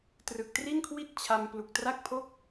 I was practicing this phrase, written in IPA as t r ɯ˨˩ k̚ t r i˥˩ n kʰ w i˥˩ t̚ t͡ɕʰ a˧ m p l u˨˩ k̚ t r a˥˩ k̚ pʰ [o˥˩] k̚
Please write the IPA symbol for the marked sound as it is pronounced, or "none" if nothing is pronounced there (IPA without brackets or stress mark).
o˥˩